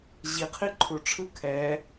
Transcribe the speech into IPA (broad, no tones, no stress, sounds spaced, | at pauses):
ʑ i qʰ i ǃʰ u ʈ͡ʂʰ ɯ kʰ ɛ